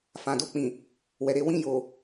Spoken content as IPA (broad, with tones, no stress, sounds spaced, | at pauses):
f ã˨ d o˧ k͡p ĩ˨ | w ɛ˨ ɾ e˧ w ĩ˧ j o˨